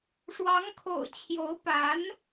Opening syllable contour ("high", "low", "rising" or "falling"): rising